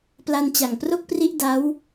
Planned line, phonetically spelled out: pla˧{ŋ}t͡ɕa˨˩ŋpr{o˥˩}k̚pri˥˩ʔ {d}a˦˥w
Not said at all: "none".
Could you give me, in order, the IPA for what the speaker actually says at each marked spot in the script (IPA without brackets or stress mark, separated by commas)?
n, o˥˩, d